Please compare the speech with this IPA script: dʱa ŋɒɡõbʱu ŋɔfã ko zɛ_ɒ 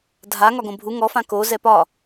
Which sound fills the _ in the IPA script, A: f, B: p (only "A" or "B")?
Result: B